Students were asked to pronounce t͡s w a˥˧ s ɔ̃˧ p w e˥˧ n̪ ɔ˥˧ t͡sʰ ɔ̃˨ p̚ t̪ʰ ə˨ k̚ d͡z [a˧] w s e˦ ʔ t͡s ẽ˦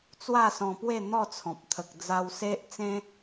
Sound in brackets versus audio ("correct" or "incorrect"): correct